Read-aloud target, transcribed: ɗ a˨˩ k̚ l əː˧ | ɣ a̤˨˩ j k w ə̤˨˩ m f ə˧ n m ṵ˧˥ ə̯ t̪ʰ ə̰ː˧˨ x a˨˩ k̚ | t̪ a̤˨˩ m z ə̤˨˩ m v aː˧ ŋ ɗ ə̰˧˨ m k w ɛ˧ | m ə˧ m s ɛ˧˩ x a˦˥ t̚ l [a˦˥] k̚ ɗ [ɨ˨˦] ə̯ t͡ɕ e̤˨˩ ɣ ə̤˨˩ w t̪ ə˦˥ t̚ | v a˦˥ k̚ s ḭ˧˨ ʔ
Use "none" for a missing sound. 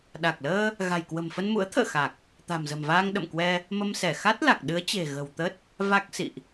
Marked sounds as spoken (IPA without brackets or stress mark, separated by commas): a˨˩, ɨ˨˦